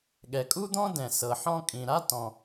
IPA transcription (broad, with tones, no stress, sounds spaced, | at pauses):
ɠ ɛ˩ kʼ u˥ d̪ ɔ̃˥ d ɛ̃˩ s ɤ˩ ħ ɔ̃˥ kʼ ĩ˩ ɾ a˥ t ɔ̃˩